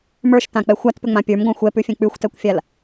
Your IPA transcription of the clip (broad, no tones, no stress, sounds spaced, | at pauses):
m ə˞ ʃ t ã k͡p ɛ xʷ a t p ʏ ŋ͡m ã pʲ ə˞ m ɡʷ ã xʷ ɛ p ʉ fʲ ɛ̃ k͡p ʉ xʷ t ɛ kʷ fʲ a l